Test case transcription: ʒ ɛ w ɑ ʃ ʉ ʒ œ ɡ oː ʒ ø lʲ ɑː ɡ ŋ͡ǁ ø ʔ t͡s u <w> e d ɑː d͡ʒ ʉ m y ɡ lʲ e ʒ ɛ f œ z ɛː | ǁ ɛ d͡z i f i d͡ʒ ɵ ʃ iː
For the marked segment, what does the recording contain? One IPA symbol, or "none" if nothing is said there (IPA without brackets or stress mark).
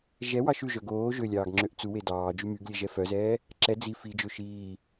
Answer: w